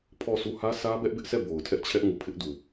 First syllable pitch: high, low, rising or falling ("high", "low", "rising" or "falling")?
falling